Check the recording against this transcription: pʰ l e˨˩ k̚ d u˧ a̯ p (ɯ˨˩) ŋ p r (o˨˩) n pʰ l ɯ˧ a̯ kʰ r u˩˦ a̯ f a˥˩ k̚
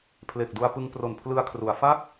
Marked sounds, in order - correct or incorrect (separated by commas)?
incorrect, correct